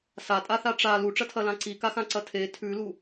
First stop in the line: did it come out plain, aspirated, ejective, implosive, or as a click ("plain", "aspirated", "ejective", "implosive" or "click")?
ejective